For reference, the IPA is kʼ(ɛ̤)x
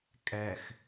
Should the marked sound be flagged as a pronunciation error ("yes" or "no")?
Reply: yes